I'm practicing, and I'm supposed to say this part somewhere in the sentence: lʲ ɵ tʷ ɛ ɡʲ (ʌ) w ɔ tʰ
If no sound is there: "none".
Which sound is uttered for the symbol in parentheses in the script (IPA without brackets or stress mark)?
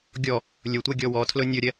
ɔ